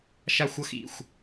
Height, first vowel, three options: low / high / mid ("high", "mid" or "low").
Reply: low